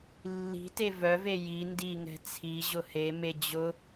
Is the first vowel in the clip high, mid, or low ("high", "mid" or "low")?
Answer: high